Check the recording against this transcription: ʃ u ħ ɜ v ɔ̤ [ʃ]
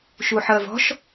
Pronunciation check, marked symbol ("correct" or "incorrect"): correct